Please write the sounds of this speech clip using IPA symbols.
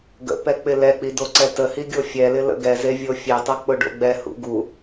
ɡ ə̰ p ɛ k͡p ɪ l ɛ k͡p i d o ǀ ɛ t ə h i ɡʲ o fʲ ɛ l ɪ l ə̰ ɡ ɛ z e vʲ o fʲ e tˤ ə k͡p ʊ ɖ o̰ ɡ͡b ɛ h ṵ ɡ u

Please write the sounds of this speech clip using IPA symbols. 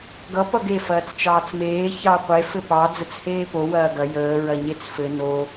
ɡ ʌ p ʌ ɡ e f ɐː t͡s t͡ʃ ɑː t͡s m eː ç ɑ qʷ e f ɘ p ɑ d͡z ə t͡s h eː p o w ɐː ɡ ɐ j əː ɹ ɐ ɲ e t͡s f ɘ n o

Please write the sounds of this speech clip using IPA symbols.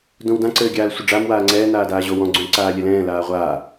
d õ w d ã ǀ ɘː ɡʲ aː l sʷ ɘ ɖ͡ʐ a m w aː ŋ͡ǀ ɛː n aː d aː ʑ o w ɔ̃ ɡ͡ǀ õ l ǀ aː lʲ ɛ l ɛ̃ː l aː ʁʷ aː

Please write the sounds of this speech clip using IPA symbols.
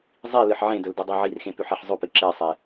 zˤ i l ɨ ħ ʕ ẽ d ɵ l d i dˤ o ʕ i r x ẽ p ʉ ħ e ħ zˤ o p ɨ ǁ e sˤ e

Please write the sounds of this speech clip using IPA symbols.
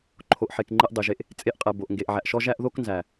ǃʰ o˨ ʔ ħ e˨ k ŋ͡ǃ e˧ ʔ dˤ e˨ ʒ e˧ ʔ | t͡sʼ e˧ ʔ qʼ ɛ˨ b o˨ ʔ ŋ ɡ e˨ ʔ ʕ æ˨ ʔ ʃ ɔ˧ ʒ æ˧ ʔ ð o˧ k n z æ˨

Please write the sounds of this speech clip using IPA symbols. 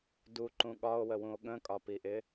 d u ǃ ũ ɠ ɒ o̯ w ə w ũ o̯ ɠ ə̃ kʼ ɒ p i ʔ ɪ

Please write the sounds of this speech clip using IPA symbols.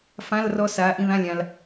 f ã˧˥˧ l r ɔ˧ s aː˨˥ ʔ ĩ˧ ð ã˧˥˧ lʲ ã˧ l

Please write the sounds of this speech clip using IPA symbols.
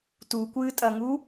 t u kʷ ɨː tʼ ɐ ŋ u

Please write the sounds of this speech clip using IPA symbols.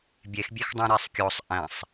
bʲ e x bʲ e x dˤ ə̃ ɾ ɛ sˤ kʲ o sˤ ʔ æ̃ sˤ

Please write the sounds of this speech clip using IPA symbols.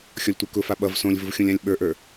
xʲ ɔ lʲ tʷ ə˞ k ʊ f a ɓ ʌ v s õ lʲ v ʊ v xʲ õ lʲ ã lʲ ɓ ə˞ ʔ ə˞

